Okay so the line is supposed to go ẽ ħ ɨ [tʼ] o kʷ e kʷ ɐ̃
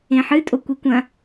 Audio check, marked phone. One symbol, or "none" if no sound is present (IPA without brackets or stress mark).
tʼ